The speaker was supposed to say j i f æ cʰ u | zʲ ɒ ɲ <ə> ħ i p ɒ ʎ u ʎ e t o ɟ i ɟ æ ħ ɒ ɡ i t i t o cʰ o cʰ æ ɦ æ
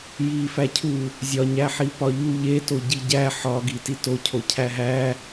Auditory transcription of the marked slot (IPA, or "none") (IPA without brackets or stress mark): æ